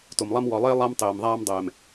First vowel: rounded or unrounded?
rounded